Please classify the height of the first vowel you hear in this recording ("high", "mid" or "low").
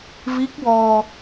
high